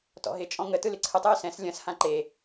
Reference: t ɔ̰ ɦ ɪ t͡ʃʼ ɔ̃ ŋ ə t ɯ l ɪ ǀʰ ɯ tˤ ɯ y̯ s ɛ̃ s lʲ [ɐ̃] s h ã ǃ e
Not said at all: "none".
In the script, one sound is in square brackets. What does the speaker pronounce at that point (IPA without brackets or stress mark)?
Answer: ɐ̃